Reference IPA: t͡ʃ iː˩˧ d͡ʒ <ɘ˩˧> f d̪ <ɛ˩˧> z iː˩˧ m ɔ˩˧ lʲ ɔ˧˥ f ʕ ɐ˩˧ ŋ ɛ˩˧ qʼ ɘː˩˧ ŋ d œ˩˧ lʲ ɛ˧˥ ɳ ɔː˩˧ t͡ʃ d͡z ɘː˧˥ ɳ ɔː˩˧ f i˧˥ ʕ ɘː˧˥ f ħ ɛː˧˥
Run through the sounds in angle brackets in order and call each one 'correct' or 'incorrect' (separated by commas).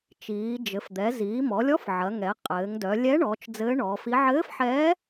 correct, correct